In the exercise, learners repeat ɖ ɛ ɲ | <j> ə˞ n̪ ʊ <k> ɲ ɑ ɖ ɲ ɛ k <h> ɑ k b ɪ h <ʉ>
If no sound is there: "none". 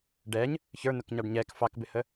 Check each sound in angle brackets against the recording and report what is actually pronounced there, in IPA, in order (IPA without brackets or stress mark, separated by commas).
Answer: ç, k, f, ə